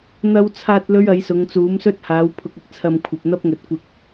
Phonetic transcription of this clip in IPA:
n̪ ɐ˧ w t͡sʰ aː˧ t̚ l ɵ˥ ɥ ɐ˨˥ j s ʊ˨˧ ŋ t͡s uː˨˥ m s ɵ˥ t̚ h aː˨˥ w pʰ ʊ˧ k̚ ɪ˥ k̚ t͡sʰ ɐ˧ m kʷʰ ɐ˨ p̚ n̪ ɐ˥ p̚ ŋ ɵ˨ t̚ kʷ ɪ˧ k̚

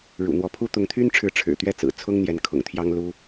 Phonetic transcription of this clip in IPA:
ɻ ṵ˨˩ n̪ w ɔ˧˥ pʰ u˥ t̪ ʊ˧˥ ŋ t̪ʰ y˥ n ʈ͡ʂʰ ɻ̩˧˥ ʈ͡ʂʰ ɻ̩˨˩ t̪ ɥ ɛ˥˩ t͡s ɹ̩˨˩ t͡sʰ ʊ˥ ŋ n̪ j ɛ˧˥ n kʰ ʊ̰˨˩ ŋ t̪ʰ j ɑ˥ ŋ l u˥

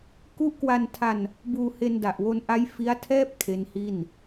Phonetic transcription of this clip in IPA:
k u˦˥ ʔ k w a˧ n tʰ a˧ n | b uː˧ h e˧ n d a˨˩ ʔ w o˧ n ʔ a˦˥ j f i˦˥ a̯ tʰ ɛː˥˩ p̚ kʰ e˦˥ n h i˥˩ n

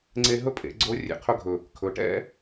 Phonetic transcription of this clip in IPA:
ŋ͡ǀ e˧ ɦ ɵ˥ pʼ ḛ˩˧ ɡ͡ǀ o˧˥ rʲ ḛ˩ qʰ ɵ˥ ɡʱ ɵ˩ | kʰ ɵ˩˧ ʈ ɛ̰˥

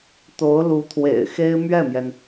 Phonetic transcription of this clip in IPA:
t̪ o˧˥ ʊ̯ l u˧˥ t̪ʰ w ḛ˨˩ ɪ̯ x e˥ ɪ̯ m ɥ ɛ˥˩ m j ɛ˩ n

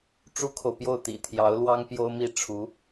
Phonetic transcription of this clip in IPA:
ʈ͡ʂ u˥ kʰ o˨ ʊ̯ p j o˥˩ ʊ̯ t̪ ḭ˨˩ t̪ʰ j ɑ˧˥ ʊ̯ l w ɑ˥ ŋ p j o˥ ʊ̯ m i˥˩ ʈ͡ʂʰ u˧˥

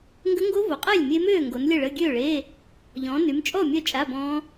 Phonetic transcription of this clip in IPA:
ŋ ɡ ə˦˥ ŋ ɡ o˦˥ v o˨˦ qʼ eː˥˨ lʲ mʲ e˦˥ m øː˥˨ ŋ ɡ o˨˦ n lʲ ə˥˨ ɭ ə˧˥˧ ɡʲ øː˥˨ ɭ eː˧˥˧ | ʎ ɔ̃ː˨˦ n y˨˦ m t͡ʃʼ ɔ˥˨ mʲ œ˥˨ t͡ʃʼ a˧˥˧ b ɔ̃ː˦˥

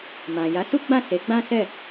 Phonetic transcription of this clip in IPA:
m ã˨ j a˨˦ s u˦ ɡ͡b ã˦˨ s e˨˦ ɡ͡b ã˦ s ɛ˦˨

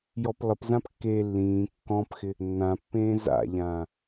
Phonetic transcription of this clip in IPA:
j ɔ p lˠ ɪ p z ã p kː e lː ĩː kː ɔ̃ p x ɪ | nː ã pː ẽː z a̰ ʎ ã

